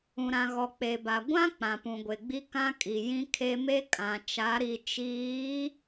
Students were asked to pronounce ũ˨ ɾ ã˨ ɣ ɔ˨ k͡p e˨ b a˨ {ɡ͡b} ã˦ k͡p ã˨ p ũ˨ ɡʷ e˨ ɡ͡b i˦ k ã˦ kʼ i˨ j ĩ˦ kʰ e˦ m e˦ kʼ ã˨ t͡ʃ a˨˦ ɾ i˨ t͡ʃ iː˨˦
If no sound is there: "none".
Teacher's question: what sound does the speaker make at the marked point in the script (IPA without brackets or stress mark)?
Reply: ɡʷ